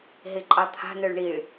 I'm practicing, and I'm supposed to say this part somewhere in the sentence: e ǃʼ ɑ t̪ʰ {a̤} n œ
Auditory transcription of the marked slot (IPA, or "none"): a̤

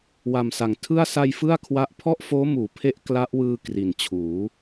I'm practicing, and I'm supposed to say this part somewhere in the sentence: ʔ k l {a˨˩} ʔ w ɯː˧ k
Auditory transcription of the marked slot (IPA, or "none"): a˦˥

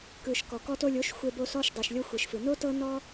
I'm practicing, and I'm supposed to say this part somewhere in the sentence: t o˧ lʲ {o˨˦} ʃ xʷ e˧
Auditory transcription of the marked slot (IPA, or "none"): o˨˦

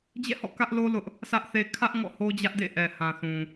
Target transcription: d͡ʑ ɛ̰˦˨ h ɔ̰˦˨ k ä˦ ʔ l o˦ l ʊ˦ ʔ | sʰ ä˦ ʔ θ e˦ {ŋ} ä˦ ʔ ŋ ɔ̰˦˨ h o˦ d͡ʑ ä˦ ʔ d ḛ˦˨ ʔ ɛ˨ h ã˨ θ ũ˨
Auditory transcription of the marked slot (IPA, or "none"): kʰ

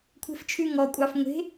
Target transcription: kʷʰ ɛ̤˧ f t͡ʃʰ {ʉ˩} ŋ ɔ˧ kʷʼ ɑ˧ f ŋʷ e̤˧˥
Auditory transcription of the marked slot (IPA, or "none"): ʉ˧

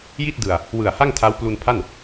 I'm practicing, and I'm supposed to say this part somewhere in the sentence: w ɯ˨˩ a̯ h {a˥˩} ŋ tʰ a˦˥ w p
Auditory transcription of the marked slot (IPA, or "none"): a˥˩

